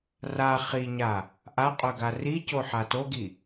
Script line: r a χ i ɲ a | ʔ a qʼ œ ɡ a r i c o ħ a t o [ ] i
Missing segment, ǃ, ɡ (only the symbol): ɡ